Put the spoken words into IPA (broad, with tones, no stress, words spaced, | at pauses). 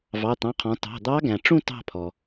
vɑ˩˧˩t̪ɑ̃˩˧˩qʰɔ̃˩˧ tɑ̤˩˧˩d̪ɑ˧˥ɡæ̃˩ʈ͡ʂũ˥˧ tɑ̤˥˧pʰɔ˩